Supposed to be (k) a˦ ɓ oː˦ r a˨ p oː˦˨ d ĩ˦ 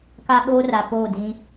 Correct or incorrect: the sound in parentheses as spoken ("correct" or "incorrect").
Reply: correct